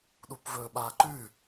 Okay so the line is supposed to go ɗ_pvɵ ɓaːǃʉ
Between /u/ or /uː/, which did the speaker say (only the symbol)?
u